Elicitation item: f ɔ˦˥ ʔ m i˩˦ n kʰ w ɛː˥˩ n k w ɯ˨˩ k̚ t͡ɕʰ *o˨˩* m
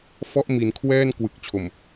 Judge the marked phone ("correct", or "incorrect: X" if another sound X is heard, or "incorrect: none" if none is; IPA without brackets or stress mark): correct